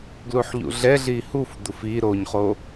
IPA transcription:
ɡ l u ħ ʎ ṵ ɮ ɛ ɮ i h u f d̪ u f i ɾ o ɲ χ o

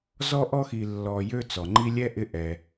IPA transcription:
z ɔ˥ ʔ ɔ˥ x i˨ lː ɔ˨ j ø˦ t͡s ɔ˩ ŋ͡ǃ i˦ lʲ ɛ˥ ʔ ɪ˦ ʔ ɛ˨

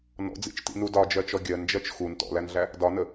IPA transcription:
n ɔ̰ d͡z ḭ t͡ʃ t ḭ n u d ɒ d͡ʒ ɜ t͡ʃ ɔ ɡʲ ɜ n d͡ʒ ɜ t͡ʃ x u n t ɔ̰ l æ n ɮ æ | d ɒ n ə

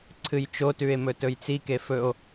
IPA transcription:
ǀʰ ɨ j t͡ʃ o t ʉ e̯ m ɵ t ɵ j t͡s i k e f ɵ o̯

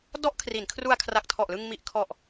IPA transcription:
d ɔ˥˩ ʔ kʰ r i˩˦ n kʰ r u˧ a̯ kʰ r a˨˩ k̚ tʰ ɔ˨˩ ʔ l ɯ˧ ŋ m i˨˩ ʔ kʰ ɔ˨˩ ʔ

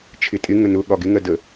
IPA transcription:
t͡ʃʰ ɪ tʼ ɪ ŋ ə n ʊ ɠ ɒ ɡ ɪ ŋ ɜ d ə

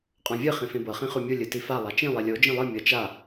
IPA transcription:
qʼ ɔ̃ vʲ ɯ χ ĩ f ẽ b ɤ χ ĩ χ u mʲ u lʲ ɯ t i f a lˠ a t͡ʃ ĩ lˠ e lʲ o d͡ʒ ĩ lˠ ɯ mʲ ɤ t͡ʃ a

